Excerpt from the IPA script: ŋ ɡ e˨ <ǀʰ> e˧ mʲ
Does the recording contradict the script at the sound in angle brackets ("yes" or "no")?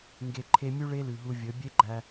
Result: yes